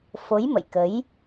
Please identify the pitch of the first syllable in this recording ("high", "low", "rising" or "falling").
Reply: rising